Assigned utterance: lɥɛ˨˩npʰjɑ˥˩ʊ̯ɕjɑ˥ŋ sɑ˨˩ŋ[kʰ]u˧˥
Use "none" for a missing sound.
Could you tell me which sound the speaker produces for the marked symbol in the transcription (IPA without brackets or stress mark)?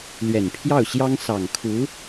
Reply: kʰ